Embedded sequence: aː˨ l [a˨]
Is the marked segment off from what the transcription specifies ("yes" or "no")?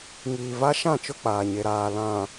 yes